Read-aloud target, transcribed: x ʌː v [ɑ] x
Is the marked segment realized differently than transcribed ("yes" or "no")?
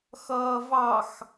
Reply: no